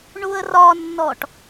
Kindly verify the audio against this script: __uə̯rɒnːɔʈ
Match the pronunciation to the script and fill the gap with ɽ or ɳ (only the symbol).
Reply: ɳ